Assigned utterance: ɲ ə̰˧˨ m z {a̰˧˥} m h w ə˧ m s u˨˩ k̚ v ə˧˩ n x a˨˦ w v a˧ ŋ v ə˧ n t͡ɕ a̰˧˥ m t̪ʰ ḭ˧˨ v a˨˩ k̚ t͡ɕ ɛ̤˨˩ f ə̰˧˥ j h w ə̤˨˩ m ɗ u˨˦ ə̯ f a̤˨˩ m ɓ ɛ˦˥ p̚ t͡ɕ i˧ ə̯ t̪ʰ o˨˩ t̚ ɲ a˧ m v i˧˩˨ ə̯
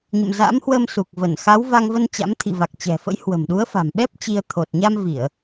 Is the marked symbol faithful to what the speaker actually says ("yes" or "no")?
yes